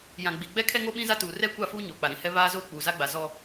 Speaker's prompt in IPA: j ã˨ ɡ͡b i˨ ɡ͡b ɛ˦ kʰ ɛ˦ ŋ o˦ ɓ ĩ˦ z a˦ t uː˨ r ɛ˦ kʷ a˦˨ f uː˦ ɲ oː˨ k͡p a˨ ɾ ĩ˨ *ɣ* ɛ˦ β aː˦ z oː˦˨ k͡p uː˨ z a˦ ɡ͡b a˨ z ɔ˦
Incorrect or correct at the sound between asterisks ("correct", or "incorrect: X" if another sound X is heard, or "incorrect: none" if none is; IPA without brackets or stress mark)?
incorrect: h